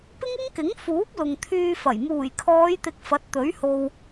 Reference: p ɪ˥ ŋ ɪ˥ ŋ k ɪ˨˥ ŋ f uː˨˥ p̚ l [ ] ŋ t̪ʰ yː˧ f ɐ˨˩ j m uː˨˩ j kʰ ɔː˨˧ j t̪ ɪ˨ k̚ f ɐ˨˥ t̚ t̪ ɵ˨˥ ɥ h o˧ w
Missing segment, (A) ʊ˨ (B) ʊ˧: A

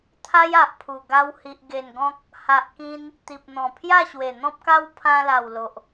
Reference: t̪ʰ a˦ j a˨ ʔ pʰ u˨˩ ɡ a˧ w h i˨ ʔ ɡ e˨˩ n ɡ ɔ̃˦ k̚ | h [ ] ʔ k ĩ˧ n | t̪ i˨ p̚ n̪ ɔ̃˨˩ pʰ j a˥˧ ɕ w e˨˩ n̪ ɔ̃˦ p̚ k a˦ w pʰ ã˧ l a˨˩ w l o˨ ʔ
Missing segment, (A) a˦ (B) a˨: B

